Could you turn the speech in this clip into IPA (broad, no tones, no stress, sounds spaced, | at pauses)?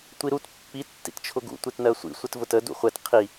tʷ i ɾ u t pː i tː ḭ t t͡ʃʰ ʊ ɡ ṵ tʷ i t n ɜ sʷ ḭ sʷ ɪ t v ʊ t ə d ṵ χʷ ɛ t qʰ i